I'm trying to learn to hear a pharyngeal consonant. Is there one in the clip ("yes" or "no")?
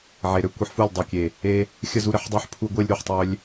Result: yes